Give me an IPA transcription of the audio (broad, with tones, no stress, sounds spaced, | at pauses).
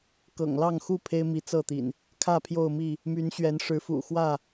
k ɤ̰˨˩ ŋ l ɑ˥˨ ŋ x u˥˨ pʰ e˦ ɪ̯ m i˨˦ t͡s ɤ˥˨ t̪ ḭ˨˩ n | kʰ ä˥˨ pʰ j o˥˨ ʊ̯ m i˥˨ | m y˨˦ n ɕ ɥ ɛ˨˦ n ʂ ɻ̩˨˦ f ṵ˨˩ x w ä˥˨